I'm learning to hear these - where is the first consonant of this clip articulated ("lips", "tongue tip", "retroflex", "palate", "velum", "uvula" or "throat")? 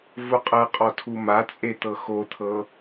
lips